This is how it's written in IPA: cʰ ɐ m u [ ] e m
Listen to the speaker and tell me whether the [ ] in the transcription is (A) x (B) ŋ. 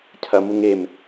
B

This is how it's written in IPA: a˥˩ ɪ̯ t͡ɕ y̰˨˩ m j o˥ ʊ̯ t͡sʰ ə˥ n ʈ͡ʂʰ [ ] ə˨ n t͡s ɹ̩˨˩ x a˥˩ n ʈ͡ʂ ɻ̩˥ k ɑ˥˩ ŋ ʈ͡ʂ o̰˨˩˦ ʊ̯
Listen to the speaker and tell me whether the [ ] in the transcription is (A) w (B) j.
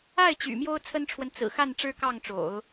A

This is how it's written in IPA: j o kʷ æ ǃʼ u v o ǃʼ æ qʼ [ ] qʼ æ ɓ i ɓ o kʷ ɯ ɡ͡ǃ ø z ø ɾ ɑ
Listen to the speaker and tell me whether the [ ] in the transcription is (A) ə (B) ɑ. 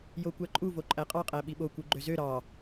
B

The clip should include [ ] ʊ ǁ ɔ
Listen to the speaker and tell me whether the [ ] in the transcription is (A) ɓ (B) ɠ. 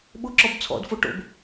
A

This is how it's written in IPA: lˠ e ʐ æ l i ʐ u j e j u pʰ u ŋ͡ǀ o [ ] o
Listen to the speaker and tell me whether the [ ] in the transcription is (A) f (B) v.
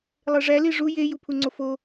A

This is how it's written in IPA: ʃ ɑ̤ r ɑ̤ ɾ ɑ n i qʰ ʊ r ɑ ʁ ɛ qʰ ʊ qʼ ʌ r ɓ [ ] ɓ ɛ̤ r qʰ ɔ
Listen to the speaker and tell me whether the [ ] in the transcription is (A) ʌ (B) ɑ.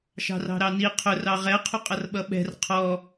A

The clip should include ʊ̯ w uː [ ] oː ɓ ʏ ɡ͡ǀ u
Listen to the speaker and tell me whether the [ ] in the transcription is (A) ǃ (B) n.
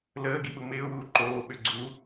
A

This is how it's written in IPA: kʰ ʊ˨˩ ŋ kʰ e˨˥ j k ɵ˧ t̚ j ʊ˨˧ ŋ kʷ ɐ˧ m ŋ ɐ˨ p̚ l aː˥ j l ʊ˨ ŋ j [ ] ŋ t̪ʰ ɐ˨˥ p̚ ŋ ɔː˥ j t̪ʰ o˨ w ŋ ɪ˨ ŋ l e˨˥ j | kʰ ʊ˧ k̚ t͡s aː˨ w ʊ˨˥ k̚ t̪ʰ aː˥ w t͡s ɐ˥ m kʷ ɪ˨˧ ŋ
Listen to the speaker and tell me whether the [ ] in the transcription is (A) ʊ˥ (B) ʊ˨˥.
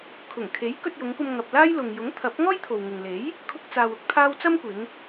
B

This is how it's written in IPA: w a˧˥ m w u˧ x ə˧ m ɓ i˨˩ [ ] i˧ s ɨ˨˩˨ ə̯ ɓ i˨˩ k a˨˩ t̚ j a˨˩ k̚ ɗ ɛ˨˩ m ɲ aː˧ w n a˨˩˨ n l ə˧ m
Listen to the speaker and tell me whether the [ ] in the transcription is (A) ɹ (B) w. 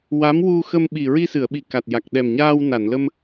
A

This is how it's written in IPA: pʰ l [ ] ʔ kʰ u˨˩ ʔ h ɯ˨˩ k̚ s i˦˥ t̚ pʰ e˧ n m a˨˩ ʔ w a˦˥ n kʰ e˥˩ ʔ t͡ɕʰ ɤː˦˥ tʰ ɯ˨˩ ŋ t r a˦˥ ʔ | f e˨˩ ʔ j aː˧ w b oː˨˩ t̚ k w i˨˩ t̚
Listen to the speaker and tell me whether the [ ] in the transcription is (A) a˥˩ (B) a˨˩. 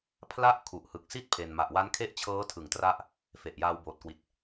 A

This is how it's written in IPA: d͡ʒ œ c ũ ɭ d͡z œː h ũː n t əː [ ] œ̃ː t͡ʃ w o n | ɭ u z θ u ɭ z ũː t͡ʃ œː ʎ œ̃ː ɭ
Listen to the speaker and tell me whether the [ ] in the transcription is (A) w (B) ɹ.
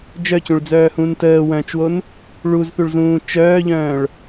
A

